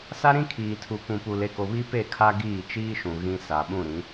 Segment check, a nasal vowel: present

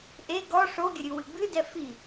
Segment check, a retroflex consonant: present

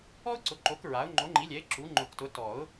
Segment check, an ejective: absent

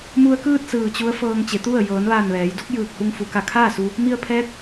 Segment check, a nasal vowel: absent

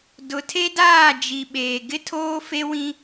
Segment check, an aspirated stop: present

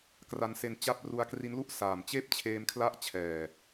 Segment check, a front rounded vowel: absent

